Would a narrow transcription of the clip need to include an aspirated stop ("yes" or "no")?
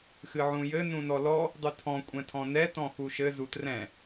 yes